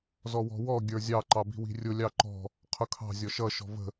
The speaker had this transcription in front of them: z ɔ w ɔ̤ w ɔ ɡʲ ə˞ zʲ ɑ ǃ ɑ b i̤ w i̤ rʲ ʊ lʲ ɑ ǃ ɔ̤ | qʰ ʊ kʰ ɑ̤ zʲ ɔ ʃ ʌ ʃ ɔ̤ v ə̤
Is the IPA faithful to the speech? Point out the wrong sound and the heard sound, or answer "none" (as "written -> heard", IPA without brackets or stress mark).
none